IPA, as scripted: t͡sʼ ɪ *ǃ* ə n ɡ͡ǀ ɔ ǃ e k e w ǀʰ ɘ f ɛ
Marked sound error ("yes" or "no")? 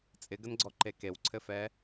yes